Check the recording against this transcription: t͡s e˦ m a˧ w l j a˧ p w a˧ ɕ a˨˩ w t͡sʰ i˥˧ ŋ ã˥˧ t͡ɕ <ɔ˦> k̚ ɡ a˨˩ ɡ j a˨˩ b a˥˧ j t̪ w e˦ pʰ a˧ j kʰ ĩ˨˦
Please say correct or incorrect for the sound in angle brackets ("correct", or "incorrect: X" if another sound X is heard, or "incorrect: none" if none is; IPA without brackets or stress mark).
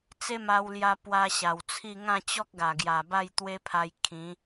correct